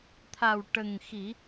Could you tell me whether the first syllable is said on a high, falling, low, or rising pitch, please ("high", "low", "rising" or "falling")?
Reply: low